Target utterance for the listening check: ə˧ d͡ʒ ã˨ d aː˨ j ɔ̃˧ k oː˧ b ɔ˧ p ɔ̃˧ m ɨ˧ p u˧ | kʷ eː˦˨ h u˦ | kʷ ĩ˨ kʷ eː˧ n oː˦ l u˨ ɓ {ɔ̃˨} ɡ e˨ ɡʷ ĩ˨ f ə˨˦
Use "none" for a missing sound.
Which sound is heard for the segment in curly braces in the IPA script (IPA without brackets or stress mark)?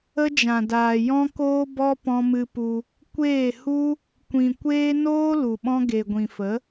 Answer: ɔ̃˧